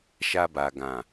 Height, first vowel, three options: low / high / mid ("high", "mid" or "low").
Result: low